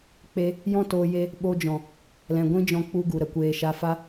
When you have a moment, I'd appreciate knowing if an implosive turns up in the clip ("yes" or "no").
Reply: yes